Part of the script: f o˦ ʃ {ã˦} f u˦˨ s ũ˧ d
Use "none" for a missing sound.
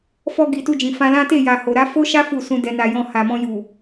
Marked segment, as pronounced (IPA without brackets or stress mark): a˦